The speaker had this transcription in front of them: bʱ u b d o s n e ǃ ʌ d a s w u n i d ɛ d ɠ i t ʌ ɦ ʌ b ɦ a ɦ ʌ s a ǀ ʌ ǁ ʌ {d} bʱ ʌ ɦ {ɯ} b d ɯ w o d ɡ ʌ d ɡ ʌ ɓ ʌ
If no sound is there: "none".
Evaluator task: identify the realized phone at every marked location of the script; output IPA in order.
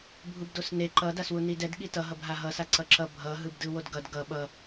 none, ɯ

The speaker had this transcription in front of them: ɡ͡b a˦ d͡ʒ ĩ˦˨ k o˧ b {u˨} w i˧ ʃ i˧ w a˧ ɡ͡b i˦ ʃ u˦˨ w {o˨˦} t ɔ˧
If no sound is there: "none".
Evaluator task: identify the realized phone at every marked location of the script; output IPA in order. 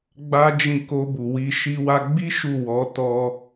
u˨, ɔ˨˦

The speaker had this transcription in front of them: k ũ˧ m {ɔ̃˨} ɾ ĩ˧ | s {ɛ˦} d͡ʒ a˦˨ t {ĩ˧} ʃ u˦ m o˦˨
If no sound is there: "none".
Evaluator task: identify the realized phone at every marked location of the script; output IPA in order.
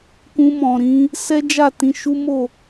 ɔ̃˨, ɛ˦, ĩ˧

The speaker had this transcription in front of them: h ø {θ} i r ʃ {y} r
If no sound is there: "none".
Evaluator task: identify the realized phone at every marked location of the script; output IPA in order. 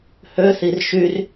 θ, y

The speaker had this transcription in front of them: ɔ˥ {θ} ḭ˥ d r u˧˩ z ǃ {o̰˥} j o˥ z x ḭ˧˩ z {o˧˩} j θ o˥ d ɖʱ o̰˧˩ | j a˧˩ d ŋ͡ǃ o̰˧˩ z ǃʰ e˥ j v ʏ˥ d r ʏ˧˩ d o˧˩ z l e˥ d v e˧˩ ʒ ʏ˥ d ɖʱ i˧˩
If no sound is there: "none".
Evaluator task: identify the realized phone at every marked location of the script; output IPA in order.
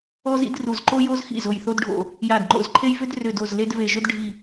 z, o˥, o˧˩

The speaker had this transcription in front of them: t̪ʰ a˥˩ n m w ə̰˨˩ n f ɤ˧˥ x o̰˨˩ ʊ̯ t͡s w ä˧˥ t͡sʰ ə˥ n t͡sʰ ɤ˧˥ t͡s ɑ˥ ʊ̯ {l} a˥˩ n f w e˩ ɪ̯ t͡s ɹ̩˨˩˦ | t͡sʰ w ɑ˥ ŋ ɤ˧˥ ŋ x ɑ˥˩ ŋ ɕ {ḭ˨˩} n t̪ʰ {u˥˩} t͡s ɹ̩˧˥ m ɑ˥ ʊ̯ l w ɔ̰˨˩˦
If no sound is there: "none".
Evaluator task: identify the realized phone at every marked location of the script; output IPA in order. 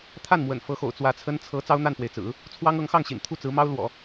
n̪, ḭ˨˩, u˥˩

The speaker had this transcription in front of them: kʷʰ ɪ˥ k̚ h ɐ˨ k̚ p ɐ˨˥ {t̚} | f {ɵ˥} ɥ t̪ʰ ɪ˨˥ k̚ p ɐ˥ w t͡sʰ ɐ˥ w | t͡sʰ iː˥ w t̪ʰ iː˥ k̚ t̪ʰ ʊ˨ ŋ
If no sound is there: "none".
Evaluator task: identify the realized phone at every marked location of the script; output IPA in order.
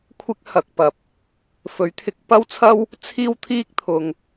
p̚, ɵ˨˥

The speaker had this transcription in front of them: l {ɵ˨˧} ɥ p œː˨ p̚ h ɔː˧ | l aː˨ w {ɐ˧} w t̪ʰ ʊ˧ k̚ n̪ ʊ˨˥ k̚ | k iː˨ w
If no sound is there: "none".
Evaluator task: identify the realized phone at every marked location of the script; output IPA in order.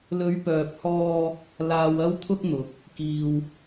ɵ˨˧, ɐ˧

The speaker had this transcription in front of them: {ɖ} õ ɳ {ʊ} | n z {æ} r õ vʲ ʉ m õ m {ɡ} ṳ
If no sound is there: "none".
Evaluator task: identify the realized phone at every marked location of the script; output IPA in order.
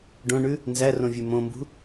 ɖ, ʉ, æ, b

